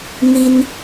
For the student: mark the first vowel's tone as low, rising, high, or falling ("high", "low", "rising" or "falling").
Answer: high